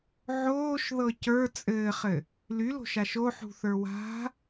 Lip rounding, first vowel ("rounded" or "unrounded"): rounded